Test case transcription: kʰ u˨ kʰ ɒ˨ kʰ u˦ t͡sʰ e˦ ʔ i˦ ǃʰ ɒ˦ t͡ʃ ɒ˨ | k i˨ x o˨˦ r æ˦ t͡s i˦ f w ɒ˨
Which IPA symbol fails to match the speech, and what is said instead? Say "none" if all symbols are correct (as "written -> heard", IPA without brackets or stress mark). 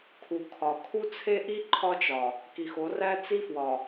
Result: none